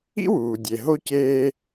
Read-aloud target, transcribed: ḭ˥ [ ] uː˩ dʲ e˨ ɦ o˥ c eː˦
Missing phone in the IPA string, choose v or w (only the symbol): w